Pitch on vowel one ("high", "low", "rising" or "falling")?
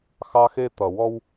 high